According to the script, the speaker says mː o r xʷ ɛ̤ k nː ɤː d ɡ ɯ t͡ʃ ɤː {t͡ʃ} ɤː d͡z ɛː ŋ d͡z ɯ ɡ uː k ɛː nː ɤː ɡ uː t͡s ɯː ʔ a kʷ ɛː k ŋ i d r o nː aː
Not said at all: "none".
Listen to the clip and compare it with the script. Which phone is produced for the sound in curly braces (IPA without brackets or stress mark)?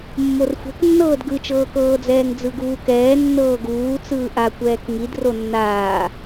k